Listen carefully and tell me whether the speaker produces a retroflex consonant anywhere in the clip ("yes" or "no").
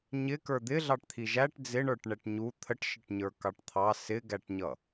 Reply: yes